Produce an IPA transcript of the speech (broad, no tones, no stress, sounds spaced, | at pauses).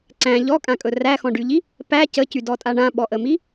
ǀ æ̃ ʎ ɔ kʼ ã kʼ ɵ r æ x ɔ̃ ɖ y ʎ i | p æ c ə c y d ɔ tʼ a ɳ ã ɓ ɔ ʔ ə m i